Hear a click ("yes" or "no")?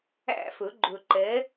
yes